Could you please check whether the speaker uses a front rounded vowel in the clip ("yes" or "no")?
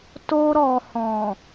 no